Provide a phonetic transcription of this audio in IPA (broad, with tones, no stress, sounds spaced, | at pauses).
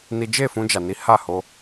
n i˦ d͡ʒ e˦˨ f ũ˧ d͡ʒ a˨ n i˨˦ h a˦˨ h o˧